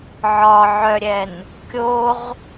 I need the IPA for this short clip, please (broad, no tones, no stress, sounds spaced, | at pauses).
ʕ ɒ ʕ œ ɾʲ ɛ n | kʲ o ʁ